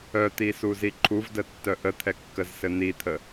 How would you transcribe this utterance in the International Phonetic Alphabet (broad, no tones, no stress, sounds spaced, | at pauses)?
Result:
œ t̪ i s u z i ǃʰ u v d ə tː œ ʔ ə t̪ʰ ɛ kː ə z s ɘ n̪ i t̪ʰ ə